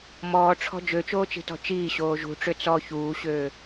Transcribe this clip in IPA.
m ɔː ʈ͡ʂʰ ɔ̤ d͡ʒ ø t͡ʃ oː t͡ʃ i̤ t ɔ̤ t͡ʃ iː ɕ oː ʒ ṳ ʈ͡ʂ ø t͡s ɔ ç uː ɕ øː

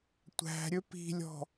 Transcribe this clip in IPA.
tʷ æ̤ ɾʲ ɵ p i̤ lʲ ɔ̤

